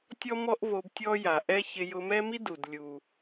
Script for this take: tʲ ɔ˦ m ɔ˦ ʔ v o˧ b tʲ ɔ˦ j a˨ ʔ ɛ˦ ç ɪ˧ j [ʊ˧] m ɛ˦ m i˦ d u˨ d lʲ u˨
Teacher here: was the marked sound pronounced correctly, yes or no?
yes